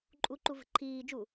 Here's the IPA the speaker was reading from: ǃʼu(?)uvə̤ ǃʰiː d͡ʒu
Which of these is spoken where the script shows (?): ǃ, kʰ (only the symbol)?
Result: ǃ